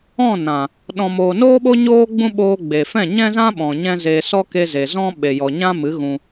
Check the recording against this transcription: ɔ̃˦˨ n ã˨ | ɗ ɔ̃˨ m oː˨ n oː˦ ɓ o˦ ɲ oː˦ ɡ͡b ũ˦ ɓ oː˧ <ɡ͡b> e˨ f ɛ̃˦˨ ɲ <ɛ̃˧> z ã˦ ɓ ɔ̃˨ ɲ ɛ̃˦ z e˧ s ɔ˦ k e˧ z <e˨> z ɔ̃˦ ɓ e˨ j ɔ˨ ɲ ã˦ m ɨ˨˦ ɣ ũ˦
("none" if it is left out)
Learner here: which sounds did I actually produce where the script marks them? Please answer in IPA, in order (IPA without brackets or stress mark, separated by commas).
ɡ͡b, ɛ̃˦, e˨